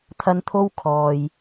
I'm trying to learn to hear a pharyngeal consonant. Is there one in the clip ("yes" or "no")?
no